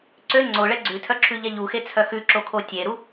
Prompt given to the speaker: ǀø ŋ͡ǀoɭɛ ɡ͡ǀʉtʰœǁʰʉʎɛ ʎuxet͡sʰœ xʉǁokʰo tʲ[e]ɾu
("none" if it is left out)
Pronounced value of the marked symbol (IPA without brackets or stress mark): e